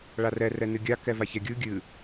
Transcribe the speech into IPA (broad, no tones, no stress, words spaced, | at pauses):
ɭarɛ rɛnɨɡʲa kɛvaçɛɡʲɯ ɡʲɨ